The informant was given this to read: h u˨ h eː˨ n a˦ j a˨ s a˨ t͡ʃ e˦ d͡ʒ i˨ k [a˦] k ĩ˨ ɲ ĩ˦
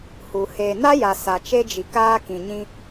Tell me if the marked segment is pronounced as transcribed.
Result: no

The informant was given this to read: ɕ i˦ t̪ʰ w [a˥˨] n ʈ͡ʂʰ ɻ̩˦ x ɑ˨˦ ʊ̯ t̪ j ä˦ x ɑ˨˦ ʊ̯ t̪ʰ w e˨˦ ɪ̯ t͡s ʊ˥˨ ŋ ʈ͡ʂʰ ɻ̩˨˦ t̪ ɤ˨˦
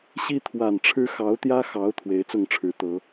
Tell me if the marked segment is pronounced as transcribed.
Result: no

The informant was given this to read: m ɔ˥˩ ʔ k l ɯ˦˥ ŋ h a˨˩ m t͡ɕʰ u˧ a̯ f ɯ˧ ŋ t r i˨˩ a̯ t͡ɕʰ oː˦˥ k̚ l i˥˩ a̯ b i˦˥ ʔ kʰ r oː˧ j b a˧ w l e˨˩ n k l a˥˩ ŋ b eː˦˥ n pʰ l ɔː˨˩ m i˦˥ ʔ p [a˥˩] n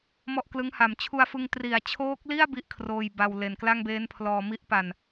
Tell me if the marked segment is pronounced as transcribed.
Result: no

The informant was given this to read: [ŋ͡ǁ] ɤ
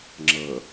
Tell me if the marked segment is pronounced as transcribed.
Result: yes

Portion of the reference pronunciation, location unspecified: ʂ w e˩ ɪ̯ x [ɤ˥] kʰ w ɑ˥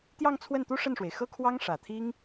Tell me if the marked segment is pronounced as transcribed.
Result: yes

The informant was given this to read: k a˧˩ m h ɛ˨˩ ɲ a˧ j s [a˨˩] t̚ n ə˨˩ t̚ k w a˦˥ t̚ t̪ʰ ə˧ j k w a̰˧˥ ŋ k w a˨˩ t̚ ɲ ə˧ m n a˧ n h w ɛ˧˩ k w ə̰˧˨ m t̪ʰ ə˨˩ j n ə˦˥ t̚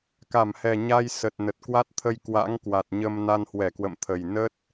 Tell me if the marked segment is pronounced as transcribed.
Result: no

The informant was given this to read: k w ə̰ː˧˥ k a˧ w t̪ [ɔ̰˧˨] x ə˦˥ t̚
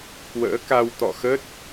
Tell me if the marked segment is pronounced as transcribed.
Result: yes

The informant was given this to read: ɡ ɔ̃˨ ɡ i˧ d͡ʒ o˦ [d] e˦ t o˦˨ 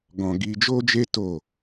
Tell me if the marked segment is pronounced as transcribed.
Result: no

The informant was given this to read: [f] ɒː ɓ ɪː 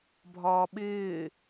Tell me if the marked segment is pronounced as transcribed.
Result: no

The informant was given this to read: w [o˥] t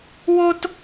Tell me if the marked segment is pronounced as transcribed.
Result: yes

